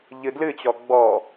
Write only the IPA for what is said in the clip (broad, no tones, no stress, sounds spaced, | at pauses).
ʎ ɨ d l ɨ t͡ɕ ɔ ɡ͡b ɔ